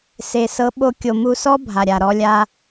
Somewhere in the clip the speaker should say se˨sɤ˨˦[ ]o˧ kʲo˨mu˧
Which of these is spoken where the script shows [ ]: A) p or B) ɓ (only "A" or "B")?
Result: B